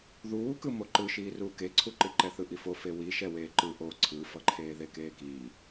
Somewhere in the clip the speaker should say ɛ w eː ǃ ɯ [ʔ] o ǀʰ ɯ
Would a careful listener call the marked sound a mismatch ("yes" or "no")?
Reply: no